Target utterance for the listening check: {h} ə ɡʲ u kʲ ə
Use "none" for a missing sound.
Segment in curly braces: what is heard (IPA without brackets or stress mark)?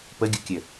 p